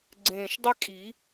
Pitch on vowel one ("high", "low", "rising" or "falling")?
low